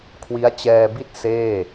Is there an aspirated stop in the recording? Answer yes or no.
yes